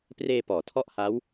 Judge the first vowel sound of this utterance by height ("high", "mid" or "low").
mid